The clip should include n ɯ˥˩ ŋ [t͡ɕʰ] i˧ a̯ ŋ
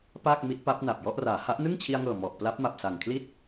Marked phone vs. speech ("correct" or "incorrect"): correct